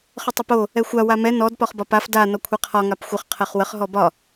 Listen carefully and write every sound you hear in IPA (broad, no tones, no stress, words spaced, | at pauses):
χətˤəpo | ɛxʷa wamɛ nɔd pɒχbɒpaf da nɔkʷʰɛqʰɒ ŋapxʷəχ qʰɜχwəχ ɦɔbɒ